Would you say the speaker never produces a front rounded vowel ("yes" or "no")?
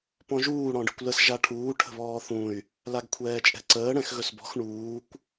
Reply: no